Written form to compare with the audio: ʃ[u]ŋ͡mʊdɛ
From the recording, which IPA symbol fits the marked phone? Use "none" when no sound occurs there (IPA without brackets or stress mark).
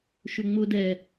ʏ